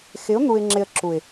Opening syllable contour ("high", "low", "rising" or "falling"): rising